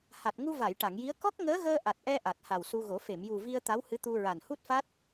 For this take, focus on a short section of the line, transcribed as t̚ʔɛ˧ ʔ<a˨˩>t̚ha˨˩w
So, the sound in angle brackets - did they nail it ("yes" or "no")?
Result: yes